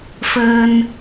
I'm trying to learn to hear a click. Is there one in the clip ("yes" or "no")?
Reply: no